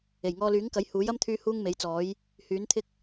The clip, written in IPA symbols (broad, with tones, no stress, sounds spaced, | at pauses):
e˨˩ j ŋ ɔː˧ l yː˨˥ ŋ k ɐ˨˥ j h uː˨˥ j ɐ˥ m t̪ʰ yː˥ h uː˥ ŋ m e˨˥ j t͡s ɔː˨˥ j | h yː˨˥ n t̪ʰ ɪ˥ k̚